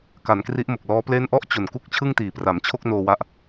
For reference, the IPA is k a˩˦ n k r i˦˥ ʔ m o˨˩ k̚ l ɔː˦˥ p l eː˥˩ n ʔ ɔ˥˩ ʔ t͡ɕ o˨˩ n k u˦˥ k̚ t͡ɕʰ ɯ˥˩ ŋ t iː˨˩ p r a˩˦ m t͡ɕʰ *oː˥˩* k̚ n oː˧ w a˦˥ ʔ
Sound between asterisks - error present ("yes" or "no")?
yes